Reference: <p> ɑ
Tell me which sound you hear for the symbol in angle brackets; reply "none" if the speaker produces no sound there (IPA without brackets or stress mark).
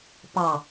p